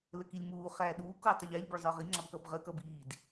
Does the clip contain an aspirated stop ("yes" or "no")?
no